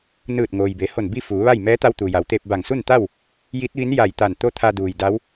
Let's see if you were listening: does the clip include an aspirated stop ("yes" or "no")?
yes